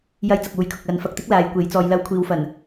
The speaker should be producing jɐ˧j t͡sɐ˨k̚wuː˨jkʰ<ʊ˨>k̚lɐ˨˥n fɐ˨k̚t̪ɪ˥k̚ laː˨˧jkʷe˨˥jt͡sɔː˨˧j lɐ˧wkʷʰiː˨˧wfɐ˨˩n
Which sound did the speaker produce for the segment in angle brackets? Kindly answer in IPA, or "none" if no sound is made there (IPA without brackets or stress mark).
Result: ʊ˨